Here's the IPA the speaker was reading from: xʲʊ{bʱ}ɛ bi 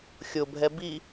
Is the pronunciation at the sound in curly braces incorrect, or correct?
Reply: correct